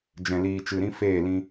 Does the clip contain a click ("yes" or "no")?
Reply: no